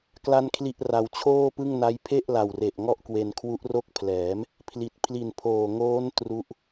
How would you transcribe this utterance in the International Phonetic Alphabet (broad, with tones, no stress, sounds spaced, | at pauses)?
k l a˥˩ n kʰ l i˥˩ ʔ r a˧ w t͡ɕʰ oː˥˩ p ɯ˥˩ ŋ n a˦˥ j pʰ e˥˩ ʔ l a˨˩ w r e˨˩ ʔ ŋ ɔ˥˩ ʔ k w e˧ n kʰ w u˦˥ ʔ r o˦˥ k̚ pʰ l ɛː˩˦ m | pʰ l i˨˩ t̚ pʰ l i˨˩ n pʰ oː˨˩ ŋ oː˦˥ n t r u˦˥ ʔ